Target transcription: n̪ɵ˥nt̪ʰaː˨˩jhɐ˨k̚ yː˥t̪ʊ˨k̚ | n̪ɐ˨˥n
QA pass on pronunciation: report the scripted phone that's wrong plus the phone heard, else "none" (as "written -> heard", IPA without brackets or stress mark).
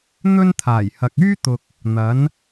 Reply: none